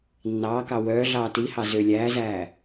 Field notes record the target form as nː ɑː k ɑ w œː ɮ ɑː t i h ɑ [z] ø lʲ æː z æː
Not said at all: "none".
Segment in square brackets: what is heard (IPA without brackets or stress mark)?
z